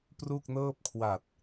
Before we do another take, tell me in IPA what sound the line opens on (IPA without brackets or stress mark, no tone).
p